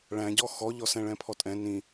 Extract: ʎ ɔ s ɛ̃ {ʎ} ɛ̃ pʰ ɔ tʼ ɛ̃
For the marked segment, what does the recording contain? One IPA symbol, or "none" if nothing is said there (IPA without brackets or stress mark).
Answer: ɭ